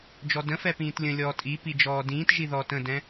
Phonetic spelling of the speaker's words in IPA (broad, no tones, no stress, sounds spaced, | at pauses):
d͡ʒ ɔ d ə̃ f ɛ p ĩː t lʲ ə̃ lʲ ɔː tʼ i p i d͡ʒ ɔː d ĩː t ʒ i ð ɔː t ə̃ d ɛ̃